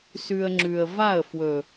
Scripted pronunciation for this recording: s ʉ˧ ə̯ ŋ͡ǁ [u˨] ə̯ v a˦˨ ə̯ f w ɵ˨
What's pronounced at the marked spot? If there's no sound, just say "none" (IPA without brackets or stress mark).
ʉ˨